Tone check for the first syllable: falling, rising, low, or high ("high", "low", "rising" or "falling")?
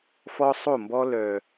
high